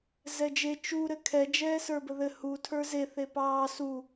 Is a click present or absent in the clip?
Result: absent